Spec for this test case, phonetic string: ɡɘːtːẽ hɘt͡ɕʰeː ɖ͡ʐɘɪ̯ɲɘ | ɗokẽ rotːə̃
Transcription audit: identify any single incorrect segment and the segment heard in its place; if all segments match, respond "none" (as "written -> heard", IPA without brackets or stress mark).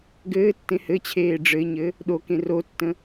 none